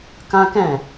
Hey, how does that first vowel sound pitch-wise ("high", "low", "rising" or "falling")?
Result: high